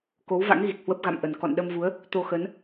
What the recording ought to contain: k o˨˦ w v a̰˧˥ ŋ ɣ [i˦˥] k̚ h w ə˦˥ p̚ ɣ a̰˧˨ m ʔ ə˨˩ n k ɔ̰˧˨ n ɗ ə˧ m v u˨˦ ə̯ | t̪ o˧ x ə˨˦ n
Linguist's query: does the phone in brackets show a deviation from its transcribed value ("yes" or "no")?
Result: yes